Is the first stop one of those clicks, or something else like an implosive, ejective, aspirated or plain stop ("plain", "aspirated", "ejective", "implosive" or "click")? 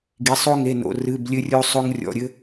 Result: plain